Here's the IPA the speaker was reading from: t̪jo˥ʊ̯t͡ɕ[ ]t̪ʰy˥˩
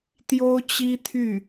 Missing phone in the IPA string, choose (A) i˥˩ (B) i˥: B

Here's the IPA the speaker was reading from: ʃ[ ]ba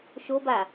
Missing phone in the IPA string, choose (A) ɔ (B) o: B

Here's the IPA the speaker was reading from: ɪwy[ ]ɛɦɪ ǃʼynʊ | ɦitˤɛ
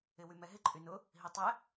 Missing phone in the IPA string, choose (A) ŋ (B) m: B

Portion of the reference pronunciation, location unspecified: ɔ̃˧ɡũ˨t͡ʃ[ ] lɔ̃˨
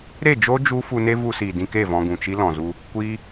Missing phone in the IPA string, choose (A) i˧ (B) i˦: B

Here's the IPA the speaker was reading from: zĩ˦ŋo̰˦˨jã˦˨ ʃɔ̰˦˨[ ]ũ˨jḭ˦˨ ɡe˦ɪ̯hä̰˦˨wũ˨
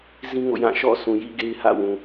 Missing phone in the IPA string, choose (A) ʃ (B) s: B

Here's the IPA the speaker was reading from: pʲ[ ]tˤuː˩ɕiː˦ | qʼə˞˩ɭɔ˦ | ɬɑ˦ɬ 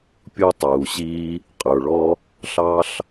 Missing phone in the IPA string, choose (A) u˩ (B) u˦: B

